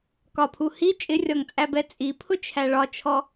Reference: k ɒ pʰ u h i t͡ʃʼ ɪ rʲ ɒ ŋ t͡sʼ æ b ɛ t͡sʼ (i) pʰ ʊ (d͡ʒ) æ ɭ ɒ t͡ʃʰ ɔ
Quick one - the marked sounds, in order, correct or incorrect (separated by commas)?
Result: correct, incorrect